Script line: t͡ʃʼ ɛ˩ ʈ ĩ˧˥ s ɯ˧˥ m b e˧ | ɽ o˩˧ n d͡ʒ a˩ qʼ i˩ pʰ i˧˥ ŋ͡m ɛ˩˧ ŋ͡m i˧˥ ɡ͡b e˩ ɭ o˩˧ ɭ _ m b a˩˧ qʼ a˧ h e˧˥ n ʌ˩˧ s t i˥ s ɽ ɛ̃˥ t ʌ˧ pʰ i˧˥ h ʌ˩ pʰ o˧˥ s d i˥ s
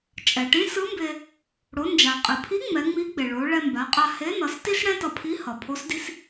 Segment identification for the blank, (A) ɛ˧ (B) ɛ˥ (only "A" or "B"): A